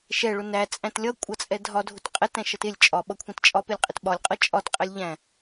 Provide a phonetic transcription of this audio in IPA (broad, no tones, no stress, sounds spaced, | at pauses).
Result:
ʃ ɛ ɭ ʊ n æ t͡sʼ æ̃ t lʲ ʌ kʷʼ ʌ t͡sʼ ɛ dʱ ɒ dʱ ʊ t qʼ ɛ t æ̃ ʃ ʌ t ɪ lʲ t͡ʃʼ ɒ ɓ ʌ kʷʰ ɛ̃ t t͡ʃʼ ɒ p ɪ lʲ qʼ ɪ t ɓ ɒ lʲ qʼ ʌ t͡ʃʼ ɒ t qʼ ɛ lʲ ʎ æ̃